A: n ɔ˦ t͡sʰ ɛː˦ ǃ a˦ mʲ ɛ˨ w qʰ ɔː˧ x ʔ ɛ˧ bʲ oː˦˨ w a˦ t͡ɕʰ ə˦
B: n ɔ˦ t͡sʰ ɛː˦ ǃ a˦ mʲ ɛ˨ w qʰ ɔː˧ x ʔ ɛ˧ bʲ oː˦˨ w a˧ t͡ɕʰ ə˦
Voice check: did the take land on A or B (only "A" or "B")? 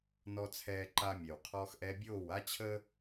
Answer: A